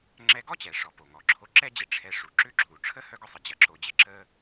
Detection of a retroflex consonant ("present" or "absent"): present